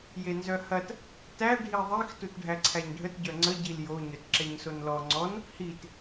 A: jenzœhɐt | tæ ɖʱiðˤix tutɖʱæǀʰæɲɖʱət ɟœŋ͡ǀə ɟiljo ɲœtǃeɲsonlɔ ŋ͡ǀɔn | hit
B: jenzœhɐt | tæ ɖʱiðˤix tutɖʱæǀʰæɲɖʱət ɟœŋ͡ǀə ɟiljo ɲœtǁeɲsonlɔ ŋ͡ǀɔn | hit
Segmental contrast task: B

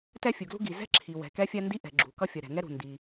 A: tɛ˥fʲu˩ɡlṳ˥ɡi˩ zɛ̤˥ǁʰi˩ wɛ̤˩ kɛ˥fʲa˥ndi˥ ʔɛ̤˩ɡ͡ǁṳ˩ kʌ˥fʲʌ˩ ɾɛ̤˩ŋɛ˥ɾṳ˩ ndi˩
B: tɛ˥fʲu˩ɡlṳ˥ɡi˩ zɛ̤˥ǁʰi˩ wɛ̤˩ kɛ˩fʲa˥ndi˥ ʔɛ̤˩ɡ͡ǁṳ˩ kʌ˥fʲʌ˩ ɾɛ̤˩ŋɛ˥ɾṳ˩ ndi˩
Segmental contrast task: A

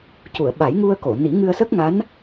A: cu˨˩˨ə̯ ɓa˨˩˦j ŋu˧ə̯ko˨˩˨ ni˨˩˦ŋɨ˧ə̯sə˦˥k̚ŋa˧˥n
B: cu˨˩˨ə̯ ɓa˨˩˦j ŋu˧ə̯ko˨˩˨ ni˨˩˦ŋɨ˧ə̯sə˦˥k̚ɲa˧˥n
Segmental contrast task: A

